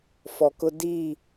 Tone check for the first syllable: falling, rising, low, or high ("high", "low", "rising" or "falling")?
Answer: low